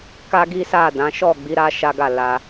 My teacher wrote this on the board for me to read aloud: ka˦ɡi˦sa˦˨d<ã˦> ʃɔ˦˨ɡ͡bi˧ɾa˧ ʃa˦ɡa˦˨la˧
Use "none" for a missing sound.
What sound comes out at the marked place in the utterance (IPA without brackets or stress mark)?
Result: ã˨˦